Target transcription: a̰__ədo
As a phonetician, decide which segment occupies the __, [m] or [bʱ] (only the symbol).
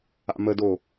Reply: m